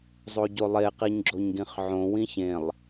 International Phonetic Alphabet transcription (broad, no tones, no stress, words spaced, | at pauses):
zˤoɟolˠe qiɲɡ͡ǁoɲɡĩχʕõ wĩçẽlˠ